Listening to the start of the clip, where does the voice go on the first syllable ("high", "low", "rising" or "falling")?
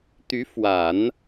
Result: rising